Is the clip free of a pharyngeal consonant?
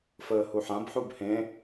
no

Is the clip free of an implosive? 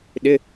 no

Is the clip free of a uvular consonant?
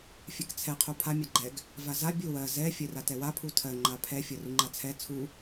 no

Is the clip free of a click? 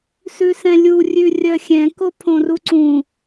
no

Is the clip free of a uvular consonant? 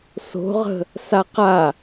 no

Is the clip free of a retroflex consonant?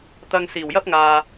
yes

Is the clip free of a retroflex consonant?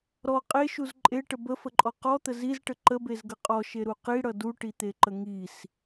no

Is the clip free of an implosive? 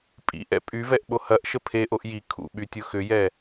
no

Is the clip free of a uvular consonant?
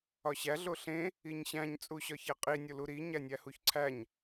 no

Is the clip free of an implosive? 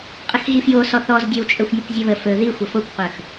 yes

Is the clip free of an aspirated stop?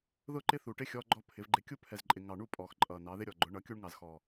no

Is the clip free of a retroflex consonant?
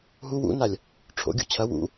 no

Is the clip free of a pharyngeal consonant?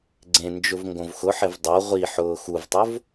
no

